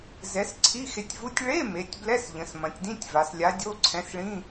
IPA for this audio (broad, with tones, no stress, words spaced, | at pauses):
zɛ˨˥s ǀʰi˧˥˧xe˨˥tʲvu˧˥˧tʲ ɭe˧˥˧me˩˧tʲ blɛ˧˥˧sʎə̃˩˧s mɐ̃˩˧tʲdĩ˧˥˧tʲva˩˧slʲa˨˥ dʲo˧˥˧ǀʰɛ̃˨˥sɭĩ˧˥˧